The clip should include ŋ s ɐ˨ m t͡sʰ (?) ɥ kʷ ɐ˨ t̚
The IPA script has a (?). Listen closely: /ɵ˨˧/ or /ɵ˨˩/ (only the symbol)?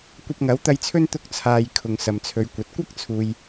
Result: ɵ˨˧